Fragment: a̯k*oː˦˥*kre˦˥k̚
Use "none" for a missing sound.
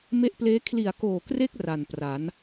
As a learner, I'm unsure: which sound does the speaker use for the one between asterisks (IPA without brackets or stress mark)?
oː˨˩